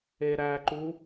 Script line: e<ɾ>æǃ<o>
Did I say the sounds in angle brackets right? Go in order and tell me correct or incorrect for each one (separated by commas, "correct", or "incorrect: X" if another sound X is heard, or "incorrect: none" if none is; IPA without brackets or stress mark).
correct, incorrect: u